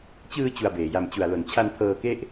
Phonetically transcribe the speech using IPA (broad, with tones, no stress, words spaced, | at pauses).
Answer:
t͡ɕɯː˧ t͡ɕu˧a̯beː˨˩ja˧m t͡ɕu˨˩a̯lo˨˩n t͡ɕʰa˧npʰɤː˧ke˥˩ʔ